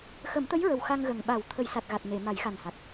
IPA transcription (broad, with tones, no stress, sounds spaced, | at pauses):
x ə˨˩˦ m t̪ ə˧˥ j ɹ ə˨˩ w x a˧ ŋ ɣ ə˨˩ ŋ ɓ a˨˩˦ w t̪ʰ ə˨˩˦ j s a˨˩ t̚ ɣ a˨˩ t̚ n e˨˩˨ m a˨˩˦ j x a˨˩ n h a˨˩ t̚